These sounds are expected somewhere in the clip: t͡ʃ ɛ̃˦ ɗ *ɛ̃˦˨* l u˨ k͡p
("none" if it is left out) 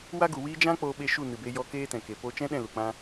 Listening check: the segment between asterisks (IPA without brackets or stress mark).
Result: ɛ̃˦˨